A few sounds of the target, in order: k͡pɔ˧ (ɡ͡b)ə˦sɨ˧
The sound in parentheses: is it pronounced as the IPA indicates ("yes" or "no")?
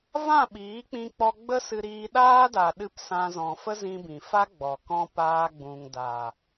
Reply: yes